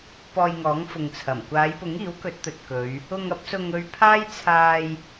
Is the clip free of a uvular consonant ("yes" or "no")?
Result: yes